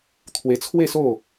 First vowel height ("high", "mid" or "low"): mid